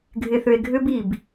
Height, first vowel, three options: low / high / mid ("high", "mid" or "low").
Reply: high